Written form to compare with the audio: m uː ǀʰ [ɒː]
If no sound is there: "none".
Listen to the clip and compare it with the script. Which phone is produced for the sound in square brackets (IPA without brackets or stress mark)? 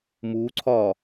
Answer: ɒː